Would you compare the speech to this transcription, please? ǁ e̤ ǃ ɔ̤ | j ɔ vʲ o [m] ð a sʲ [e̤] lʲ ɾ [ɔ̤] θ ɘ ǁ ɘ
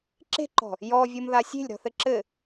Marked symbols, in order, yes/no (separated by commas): yes, yes, yes